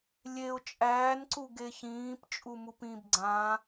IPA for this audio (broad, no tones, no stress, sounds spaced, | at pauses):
lʲ e ʊ̯ t͡ʃʼ æː n ǀ u ɡ e ç ĩː p t͡ʃʼ u m u p ĩ b ɡ͡ǀ ã